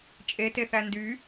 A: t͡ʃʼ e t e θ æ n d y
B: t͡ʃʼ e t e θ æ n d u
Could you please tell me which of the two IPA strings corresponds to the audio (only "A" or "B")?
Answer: A